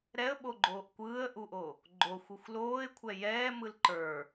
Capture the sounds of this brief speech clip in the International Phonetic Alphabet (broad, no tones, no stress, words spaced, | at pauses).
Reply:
ɾɛə̯ɓoɡ͡ǃoːʔ kʷɯːə̯ʔuʔo | ɡ͡ǃoxʷuxʷ loːɪ̯kʷʰɛ jɛːmɯl ǃə˞